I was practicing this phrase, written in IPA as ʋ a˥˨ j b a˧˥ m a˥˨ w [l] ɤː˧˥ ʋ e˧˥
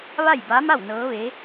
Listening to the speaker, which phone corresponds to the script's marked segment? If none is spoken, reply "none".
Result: n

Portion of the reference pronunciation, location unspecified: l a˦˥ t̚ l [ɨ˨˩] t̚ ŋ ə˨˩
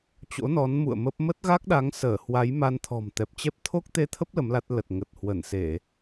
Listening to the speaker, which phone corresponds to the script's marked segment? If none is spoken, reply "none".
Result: ə˨˩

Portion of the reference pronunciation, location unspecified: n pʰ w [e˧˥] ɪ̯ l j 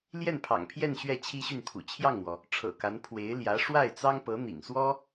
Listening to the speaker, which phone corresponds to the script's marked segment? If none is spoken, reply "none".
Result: e˧˥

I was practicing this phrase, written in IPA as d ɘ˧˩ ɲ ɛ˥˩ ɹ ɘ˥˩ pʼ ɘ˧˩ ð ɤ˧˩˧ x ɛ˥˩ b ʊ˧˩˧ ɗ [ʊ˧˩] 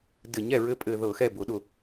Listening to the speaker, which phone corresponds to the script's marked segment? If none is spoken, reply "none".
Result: ʊ˧˩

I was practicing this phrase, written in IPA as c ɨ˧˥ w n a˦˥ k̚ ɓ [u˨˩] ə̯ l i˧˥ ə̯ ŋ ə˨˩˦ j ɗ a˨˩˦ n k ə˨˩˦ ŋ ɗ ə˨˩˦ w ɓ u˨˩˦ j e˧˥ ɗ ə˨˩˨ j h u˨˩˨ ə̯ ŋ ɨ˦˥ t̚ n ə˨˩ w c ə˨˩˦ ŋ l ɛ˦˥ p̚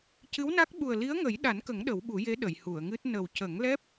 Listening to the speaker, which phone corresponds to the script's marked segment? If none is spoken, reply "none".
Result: u˨˩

